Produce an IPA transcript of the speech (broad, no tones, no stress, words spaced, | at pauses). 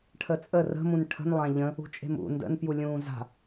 ʈʰət͡sʼə rə̤mũn ʈʰə̤nlˠã ʎə̃ | ṳt͡ʃʼe̤mṵ ndə̰npjulʲũː za̤